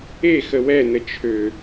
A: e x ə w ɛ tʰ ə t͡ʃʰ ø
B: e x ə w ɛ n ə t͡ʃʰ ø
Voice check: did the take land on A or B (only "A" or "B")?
B